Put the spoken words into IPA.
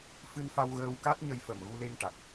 f ɨ˧ n f a˧ w ɣ əː˧ w k a˦˥ t̚ ɲ ə˧ j f ə˨˩ m ɣ u˧ l e˧ ŋ ʈ a˨˩ k̚

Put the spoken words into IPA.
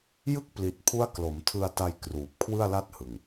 j ɯ˥˩ k̚ p l i˨˩ t̚ pʰ u˦˥ a̯ k l o˩˦ m tʰ ɯ˧ a̯ t a˧ j k r uː˨˩ p̚ kʰ w ɯ˥˩ a̯ l a˥˩ t̚ h ɯ˨˩ ŋ

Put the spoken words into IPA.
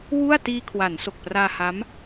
w u˥˩ a̯ t iː˧ kʰ w a˩˦ n s o˨˩ k̚ p r aː˧ h a˦˥ m

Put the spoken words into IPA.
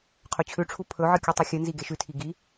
qʰ ɵ t͡ɕʰ ʉ ʈ͡ʂʰ u pʰ ɵ ʕ ɨ kʲ u tˤ i xʲ ɨ n z i ɡ e ʃ ʉ tʰ i ɡ i

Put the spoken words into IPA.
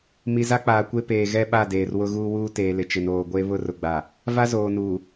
m i˨ z a˦ k͡p aː˨ kʷ e˦ p eː˨ ɣ ɛ˦ ɓ a˦˨ d eː˨ r w ʊ˦ ɣ uː˦ w uː˦ t eː˨ l ɪ˨ t͡ʃ ɪ˨ n oː˨ ɡʷ e˦ β ʊ˦ r ʊ˨ ɡ͡b a˨ | v a˦ z oː˨ n uː˨

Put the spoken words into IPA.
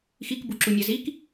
x i k b u ǁ u nʲ a z i k

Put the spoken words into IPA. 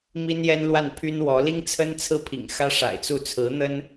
m i˥ n j ɛ˥ n l w a˥˩ n pʰ y˥ n w ɔ˧˥ l i˥ ŋ t͡sʰ ə˥ n t͡sʰ ɹ̩˥˩ pʰ ḭ˨˩ ŋ x ä˥ ʂ a̰˨˩ ɪ̯ t͡s u˥˩ t͡sʰ ɹ̩˧˥ n̪ ə˥ n

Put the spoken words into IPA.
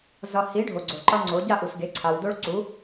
z ʌ˨ h i˨˥ ɖʱ o˨ ɡ͡ǀ o˨ ǃ ʌ˦ ŋ͡ǀ o˨˥ ɟ a˥˨ ʔ u˨ s ɡ e˨˥ ǀʰ a˨ w d o˦ ɭ ǀ u˨˥

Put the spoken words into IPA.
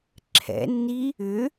ǁʰ ɛ̰ nː i | ʏ

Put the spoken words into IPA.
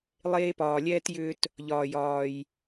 lˠ eː˧ p ɒː˩ lʲ ɛː˧ t j ʏː˧ t | ʎ ɒː˩ j ɒː˩ j

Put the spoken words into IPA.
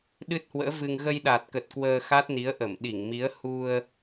ɗ ɨ˦˥ t̚ h w ə̰ː˧˥ v ɨ˧ ŋ ɣ ə˧ j ɗ a˨˩ t̚ k ə˨˩ t̚ k w əː˧ x a˦˥ t̚ n i˨˦ ə̯ ʔ ə˧˩ m ɗ i˧˩ ŋ m i˨˦ ə̯ h u˧ ə̯

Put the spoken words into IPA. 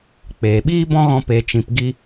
k͡p eː˨ ɓ iː˦ b ɔ̃˦ ɣ ɔ̃˧ p e˨ t͡ʃ ĩ˨ p ɡ i˧

